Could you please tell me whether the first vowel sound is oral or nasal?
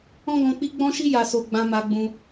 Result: nasal